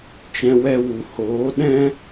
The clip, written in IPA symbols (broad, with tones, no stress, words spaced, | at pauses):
t͡ʃɛ̃˧wɛ˧wu˨ hoː˨˦ɗɛ̃˦